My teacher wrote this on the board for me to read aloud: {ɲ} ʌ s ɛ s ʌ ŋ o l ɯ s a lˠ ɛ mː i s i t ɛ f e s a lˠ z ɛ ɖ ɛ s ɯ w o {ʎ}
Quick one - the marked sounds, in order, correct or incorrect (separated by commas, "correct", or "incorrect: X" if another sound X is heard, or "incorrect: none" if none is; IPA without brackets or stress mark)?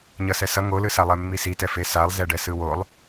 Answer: correct, incorrect: lˠ